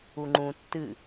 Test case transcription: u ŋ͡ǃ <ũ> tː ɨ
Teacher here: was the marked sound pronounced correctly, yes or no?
yes